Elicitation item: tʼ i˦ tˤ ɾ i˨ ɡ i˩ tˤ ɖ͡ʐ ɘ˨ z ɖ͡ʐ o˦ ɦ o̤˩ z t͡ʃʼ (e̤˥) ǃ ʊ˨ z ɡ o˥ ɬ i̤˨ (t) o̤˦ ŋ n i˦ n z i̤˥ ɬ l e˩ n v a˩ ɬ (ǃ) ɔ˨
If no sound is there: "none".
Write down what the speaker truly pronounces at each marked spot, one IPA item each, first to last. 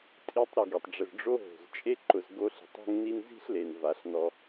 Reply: e˥, tˤ, n

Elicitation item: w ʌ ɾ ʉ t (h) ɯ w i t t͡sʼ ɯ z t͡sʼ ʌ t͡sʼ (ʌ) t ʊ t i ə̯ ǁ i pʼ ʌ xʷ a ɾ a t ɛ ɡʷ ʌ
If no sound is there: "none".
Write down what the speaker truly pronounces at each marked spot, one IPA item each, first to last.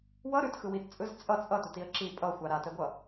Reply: x, ʌ

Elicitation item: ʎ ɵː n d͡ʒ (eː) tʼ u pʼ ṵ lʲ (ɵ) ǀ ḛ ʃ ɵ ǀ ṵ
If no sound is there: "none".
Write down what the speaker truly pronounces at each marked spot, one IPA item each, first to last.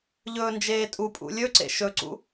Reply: eː, ɵ

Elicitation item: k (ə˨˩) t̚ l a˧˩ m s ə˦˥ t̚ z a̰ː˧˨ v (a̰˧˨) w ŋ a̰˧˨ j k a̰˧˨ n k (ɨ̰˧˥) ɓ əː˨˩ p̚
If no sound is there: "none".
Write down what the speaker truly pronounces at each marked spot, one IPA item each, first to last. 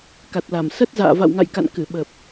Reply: a˨˩, a̰˧˨, ɨ˧˩

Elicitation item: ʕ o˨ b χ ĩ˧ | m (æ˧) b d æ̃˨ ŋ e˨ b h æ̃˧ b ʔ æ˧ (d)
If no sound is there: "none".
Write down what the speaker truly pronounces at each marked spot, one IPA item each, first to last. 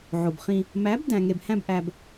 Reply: æ˨˦, b

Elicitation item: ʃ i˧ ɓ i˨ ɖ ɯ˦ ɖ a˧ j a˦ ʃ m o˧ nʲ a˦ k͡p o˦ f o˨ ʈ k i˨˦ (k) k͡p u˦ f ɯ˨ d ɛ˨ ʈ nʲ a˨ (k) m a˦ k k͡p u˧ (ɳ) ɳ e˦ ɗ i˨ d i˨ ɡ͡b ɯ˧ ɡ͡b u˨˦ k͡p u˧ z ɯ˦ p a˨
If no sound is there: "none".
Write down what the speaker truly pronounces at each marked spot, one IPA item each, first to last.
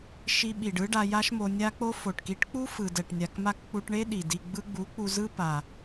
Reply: ʈ, k, ʈ

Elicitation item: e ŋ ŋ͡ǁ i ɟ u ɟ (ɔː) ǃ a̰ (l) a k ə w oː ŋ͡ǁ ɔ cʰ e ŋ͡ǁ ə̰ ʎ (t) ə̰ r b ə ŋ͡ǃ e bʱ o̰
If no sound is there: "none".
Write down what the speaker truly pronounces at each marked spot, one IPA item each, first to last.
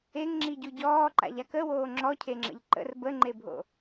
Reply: ɔː, ʎ, ǃ

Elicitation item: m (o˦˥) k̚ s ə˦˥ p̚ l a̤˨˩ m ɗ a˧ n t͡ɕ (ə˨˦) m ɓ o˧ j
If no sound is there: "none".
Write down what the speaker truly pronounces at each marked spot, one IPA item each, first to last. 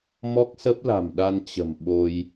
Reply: ɔ˦˥, ə̤˨˩

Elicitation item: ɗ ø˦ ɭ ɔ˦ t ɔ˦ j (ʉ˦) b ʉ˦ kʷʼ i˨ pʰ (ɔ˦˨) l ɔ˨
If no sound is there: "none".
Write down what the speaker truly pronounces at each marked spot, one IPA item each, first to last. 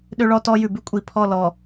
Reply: ʉ˨, ɔ˦˨

